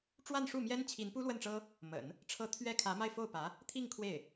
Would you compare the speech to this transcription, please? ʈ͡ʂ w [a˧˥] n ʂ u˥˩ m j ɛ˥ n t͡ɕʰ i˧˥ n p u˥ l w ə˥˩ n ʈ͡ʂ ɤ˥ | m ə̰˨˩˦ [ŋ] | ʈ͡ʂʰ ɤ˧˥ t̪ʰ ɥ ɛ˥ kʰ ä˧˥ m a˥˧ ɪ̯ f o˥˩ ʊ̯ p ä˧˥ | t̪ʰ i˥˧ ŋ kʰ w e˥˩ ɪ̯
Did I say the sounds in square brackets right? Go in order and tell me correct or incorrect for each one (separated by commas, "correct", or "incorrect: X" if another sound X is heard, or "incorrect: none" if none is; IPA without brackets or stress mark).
incorrect: a˥˧, incorrect: n